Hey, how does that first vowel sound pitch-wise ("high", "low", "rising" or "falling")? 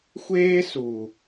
high